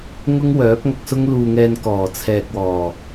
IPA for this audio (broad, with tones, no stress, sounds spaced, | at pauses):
ŋ ʊ˥ ŋ w œː˨˥ p̚ ŋ ɐ˧ k̚ s ʊ˥ ŋ l uː˧ ŋ ɛː˧ n k ɔː˨˩ t͡sʰ ɛː˨ k̚ w ɔː˨˩